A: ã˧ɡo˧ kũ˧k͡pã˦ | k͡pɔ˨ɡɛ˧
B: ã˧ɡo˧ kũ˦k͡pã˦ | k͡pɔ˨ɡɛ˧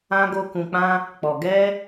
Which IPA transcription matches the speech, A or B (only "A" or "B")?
A